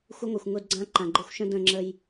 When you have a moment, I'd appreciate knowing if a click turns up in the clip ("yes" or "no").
yes